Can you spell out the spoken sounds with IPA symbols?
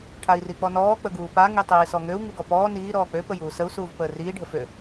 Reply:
ʈʰai̯rik͡pɔnɔː k͡pəɡuːpa ŋitˤiːsɔŋøu̯ ŋuɡɔpɔː niː ɾɔːk͡pø pəjuːsəu̯ suːvpəːriː ɖʱəfø

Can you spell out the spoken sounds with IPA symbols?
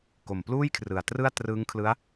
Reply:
ko˨˩mpluː˥˩jkʰrɯ˨˩a̯trɯ˥˩a̯ trɯː˦˥ŋkʰlɯ˦˥a̯

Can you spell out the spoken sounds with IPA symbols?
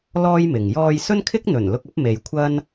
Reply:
lɔː˥jmɪ˨ŋ jɔː˧j sɵ˥nkʰɪ˥k̚n̪ɵ˨˩n lʊ˧k̚ɐ˨˥p̚me˨j kʷʰɐ˥n

